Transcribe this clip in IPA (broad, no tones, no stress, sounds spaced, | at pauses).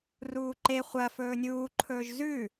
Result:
r uː ǃ e χʷ ɐ f ɵː nʲ uː ǃʰ ɵː ʒ z ʉ